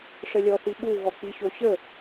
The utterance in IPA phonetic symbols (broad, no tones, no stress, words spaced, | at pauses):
ʂəlʲɔθiɓu ɣɔk͡piɕoɕə